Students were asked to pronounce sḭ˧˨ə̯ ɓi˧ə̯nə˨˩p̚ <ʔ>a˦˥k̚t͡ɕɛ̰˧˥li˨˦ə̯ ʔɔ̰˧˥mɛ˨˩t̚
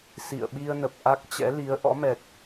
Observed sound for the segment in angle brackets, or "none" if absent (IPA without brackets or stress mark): ʔ